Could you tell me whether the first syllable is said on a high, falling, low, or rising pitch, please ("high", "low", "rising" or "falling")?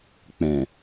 low